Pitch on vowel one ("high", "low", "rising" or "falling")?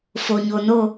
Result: low